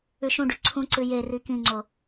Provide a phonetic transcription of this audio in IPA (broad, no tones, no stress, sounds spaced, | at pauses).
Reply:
ʉ ʃ ũ ɖ ʉ ǀʰ ũ ǀ ɨ j e r i k ĩ ŋ͡ǀ o